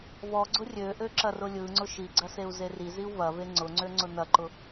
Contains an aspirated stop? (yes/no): no